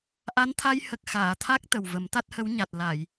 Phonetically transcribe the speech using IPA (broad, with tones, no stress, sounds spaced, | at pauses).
ʔ a˧˥ n t̪ʰ a˧ j h ə˨˩ k̚ x aː˨˩˨ t̪ʰ a˦˥ k̚ t̪ ə˨˩ w v ə˨˩˦ m t̪ a˦˥ t̚ h ə˧˥ w ɲ a˨˩ t̚ l a˨˩˨ j